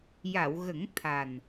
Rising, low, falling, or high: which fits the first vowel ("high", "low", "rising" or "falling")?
low